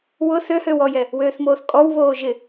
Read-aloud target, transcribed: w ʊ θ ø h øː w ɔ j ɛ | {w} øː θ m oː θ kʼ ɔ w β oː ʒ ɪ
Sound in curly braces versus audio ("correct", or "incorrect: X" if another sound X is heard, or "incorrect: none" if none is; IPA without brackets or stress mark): correct